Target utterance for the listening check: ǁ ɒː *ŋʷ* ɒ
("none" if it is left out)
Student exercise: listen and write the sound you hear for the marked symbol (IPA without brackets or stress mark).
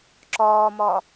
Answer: m